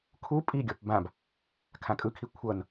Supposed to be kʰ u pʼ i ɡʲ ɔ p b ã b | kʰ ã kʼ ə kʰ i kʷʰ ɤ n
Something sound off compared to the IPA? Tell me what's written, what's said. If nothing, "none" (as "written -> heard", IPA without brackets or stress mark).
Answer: ə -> ɯ